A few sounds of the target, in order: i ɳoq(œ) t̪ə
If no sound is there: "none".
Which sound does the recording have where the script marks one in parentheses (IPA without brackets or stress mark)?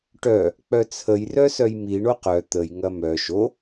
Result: œ